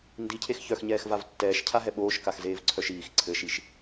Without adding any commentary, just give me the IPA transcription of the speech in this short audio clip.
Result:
n d i cʰ e x ç œ x ɲ ɛː x v a v tː ɛː ʃ cʰ a ɦ ɛ ɓ oː ʃ k a x z eː v ǀʰ œ ʃ iː x ǀʰ ɘ ʃ i ʃ

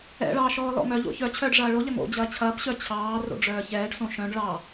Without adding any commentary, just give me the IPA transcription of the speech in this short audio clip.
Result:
ɛ̰ ɭ ɑː ʃ ɔː l ɔ̰ ŋ œ ʎ o̰ ç œ t͡ɕʰ œː ɖ ʐ ɐː ɭ o ʎ ɐ ŋ o̰ d͡ʑ ɐː t͡ɕʰ ɐː p ɕ œ t͡ɕʰ ɑː r o̰ ɖ͡ʐ œː ç ɛː ɖ s õ ʃ œ̃ ɖ ɭ ɑ

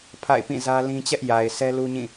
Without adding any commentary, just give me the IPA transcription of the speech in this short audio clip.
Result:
pʰ a̰˦˨ ɪ̯ p ĩ˦˨ z ä˦ l ĩ˦ t͡ɕ ɛ˦ ʔ j a˨ ɪ̯ sʰ ɛ˦ l u˦ ɲ ĩ˦˨

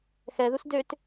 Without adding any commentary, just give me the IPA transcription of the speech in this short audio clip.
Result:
x ɛ ð u s d ø t

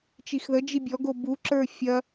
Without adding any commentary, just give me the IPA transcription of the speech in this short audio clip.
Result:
t͡ʃ i x ð ə d͡ʒ i bʲ ɔ ɡ o b u ǁ ə˞ fʲ ɐ

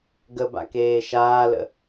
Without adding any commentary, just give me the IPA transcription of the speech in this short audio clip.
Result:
ɡ ə b a̰ k eː ʃ aː l ə̰

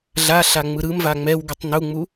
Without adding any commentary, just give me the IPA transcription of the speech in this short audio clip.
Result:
ɮ a ɬ a ŋ͡m ɯ ɾ ɯ m v a ŋ͡m ɛ w ɡ ɯ tˤ n u ŋ͡m u

